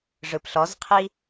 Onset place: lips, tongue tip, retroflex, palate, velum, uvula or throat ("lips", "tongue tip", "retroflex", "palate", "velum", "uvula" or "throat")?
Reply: retroflex